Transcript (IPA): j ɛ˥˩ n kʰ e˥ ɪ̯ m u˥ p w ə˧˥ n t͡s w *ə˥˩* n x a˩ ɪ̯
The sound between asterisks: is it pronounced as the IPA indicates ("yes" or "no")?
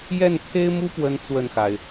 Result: yes